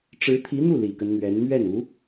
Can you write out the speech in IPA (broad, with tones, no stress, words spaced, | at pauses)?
ʈ͡ʂɻ̩˧˥t̪ʰi˧˥n̪u˥˩ li˨˩kə˦nn̪ɥɛ˧˥n mɥɛ˥˩nu˧˥